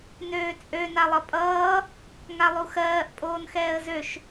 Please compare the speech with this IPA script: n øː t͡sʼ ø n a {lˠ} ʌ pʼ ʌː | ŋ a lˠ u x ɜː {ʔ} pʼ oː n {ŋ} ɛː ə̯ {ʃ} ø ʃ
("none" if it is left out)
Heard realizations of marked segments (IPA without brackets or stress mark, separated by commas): lˠ, ʔ, x, z